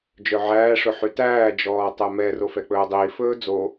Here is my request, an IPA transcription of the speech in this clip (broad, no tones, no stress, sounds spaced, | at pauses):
d͡ʒ œ ʕ æː ʂ ɵ ħ y t æː d͡ʒ ɔː tˤ ɛ m ɛ r o f ɛ k͡p ɵː dˤ iː f ɵː d͡z o